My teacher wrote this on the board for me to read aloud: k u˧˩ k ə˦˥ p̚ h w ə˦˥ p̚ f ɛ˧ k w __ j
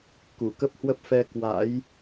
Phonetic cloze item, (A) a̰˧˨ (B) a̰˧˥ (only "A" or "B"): B